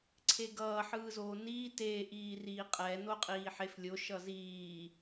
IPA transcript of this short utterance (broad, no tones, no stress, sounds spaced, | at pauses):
ǀʰ e ɡ ʌː ħ ɯː z oː n iː t e ʔ iː r iː qʼ ɛ n o qʼ iː ħ e f lʲ o ʃ ʌ z iː